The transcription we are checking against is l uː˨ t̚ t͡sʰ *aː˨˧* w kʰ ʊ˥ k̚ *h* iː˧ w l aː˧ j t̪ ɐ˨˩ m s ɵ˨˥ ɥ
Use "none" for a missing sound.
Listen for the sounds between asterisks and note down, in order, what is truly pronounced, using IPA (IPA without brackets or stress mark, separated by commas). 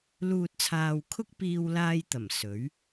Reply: aː˨, p